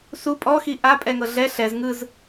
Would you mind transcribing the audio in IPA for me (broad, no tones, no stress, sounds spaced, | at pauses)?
s u pʼ ɔ x i ʔ a pʼ ɛ ŋ ɤ ɮ ɛ ɬ ɛ z ŋ ɯ z